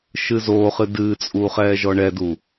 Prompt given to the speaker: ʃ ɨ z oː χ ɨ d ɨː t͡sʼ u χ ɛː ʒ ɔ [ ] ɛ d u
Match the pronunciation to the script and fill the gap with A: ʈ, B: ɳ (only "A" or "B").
B